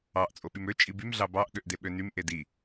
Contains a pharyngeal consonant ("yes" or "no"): no